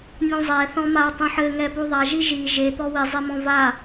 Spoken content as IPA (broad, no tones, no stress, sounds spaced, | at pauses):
nʲ ũ zˤ ɛ θ ɔ̃ m a tˤ ũ ħ ɘ ŋ ɛ p u ðˤ a ʒ i ʒ i ʒ e t̪ ɔ w i zˤ e m ɔ̃ v a